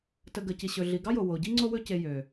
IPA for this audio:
t ə˨ ɡ ə˨ c i˨ ɕ ɵ˨ ɮ i˨ ɡ ɑ˦ j o˨ w o˨ ɟ i˦ ŋ͡ǀ o˧ w ɵ˧ c e˨ j ø˨

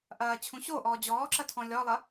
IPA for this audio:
ʔ ɐː t͡ɕʰ ũ ɕ o ʔ ɔː d͡ʑ ɔː ǁ ɐ tʰ ɔ̃ lʲ ɔ lˠ ɐ

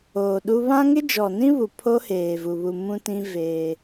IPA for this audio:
oː˨ ɗ u˦ β ã˦ ŋ ɪ˦ d͡ʒ ɔ˨ n ĩ˦ β u˨ pʰ o˦ h eː˨ v u˨ β u˨ m ũ˦ t ĩ˦ v eː˦

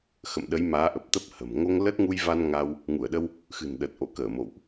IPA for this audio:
x ə̰˧˨ m ɗ ə˨˦ j m aː˨˦ ʔ ə˨˩ p̚ t̪ ə˦˥ p̚ h ə̤˨˩ m ŋ o˧ ŋ l ə˦˥ t̚ ŋ u˧ j v a˧ n ŋ a˧ w | ŋ u˧˩ ə̯ ɗ ə˧ w | x ɨ̤˨˩ n ɗ ə˨˩ t̚ ʔ o̰˧˨ k əː˧˩ m o̰˧˨ w ʔ

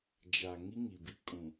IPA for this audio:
d͡ʒ a˨ ŋ i˦ ŋ i˨ b i˦ kʼ ũ˨

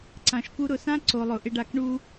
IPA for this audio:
ǀ ã˨ ʃ k u˧ ɾ ʊ˨ s ã˦ ǀ o˨ lˠ ʊ˨ ʔ ɪ˧ ɖ a˧ k ɳ u˦

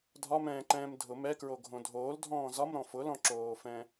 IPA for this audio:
dʱ ɒ m ɛ̃ː ǃ ɛ̃ː m dʱ ʊ m ɛ k ɹ o ɡʱ õ dʱ oː l dʱ ɔ̃ː z ɒ m ɾ ɔ̃ f ʊ l ɔ̃ ǁ oː f ɛ̃

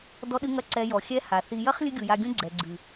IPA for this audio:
d ɔ˧ ɗ ɨ˧ ŋ ɐ˧ ǀ ɛ˧ j ɔ˨ xʲ ɛ˦ h a˨ θ i˨ j ɐ˦ χ lʲ ɨ˦ ɡʲ u˨ j a˧ ɡʲ ũ˦ ɡ͡ǀ ɛ˨ ɡ͡ǀ ɨ˨

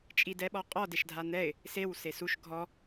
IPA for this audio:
t͡ʃʼ i d ɛ ɓ ɔ qʼ ɔ d e ʃ dʱ a n̪ ɛ ɪ̯ | s e w s e s u ʃ ɡʱ ɔ

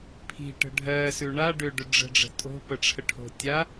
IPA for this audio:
pʰ i̤ ʈ ə̤ ɖʱ ɜ s ʉ ɳ a ɖ ʏ ɖ ʏ ɖ͡ʐ ə̤ ɖ͡ʐ ə̤ tʼ o̤ p ə ʈ͡ʂʰ ə ʈʰ o̤ tʲ a

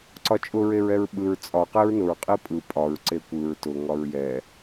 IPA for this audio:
ǀ ɒ t͡ʃʼ ʊ ɹ e ɹ ɛ ɹ ɓ ɯ ɹ t͡sʼ ɒ q e ɹ n ʊ ɹ qʼ i pʼ ɯ pʼ ɒ ɹ ǀ e kʷ ɯ ɹ t ʊ ŋ ɒ ɹ j ɛ

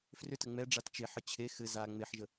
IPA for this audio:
f r ʏ t ə ŋ͡m ɛ ɖ͡ʐ a t t͡ʃ e ħ ə t͡ɕʰ e x ɘ z a ŋ͡m e ħ ʒ ə

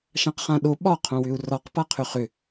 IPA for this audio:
ʃ ã q χ ã ɗ o ɓ ɒ qʰ õ w ʏ u̯ r ɒ q p a qʰ ʏ χ ʏ

